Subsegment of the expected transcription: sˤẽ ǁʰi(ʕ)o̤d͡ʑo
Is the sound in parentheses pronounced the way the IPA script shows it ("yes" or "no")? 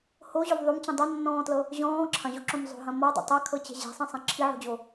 yes